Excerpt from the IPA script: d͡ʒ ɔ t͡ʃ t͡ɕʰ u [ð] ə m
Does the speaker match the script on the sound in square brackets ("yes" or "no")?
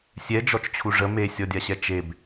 no